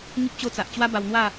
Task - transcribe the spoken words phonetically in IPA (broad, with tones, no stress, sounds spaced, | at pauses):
ŋ i˦ p̚ t͡ɕ o˦ t͡s a˨ ʔ t͡ɕ w a˦ b a˧ w n̪ w a˥˧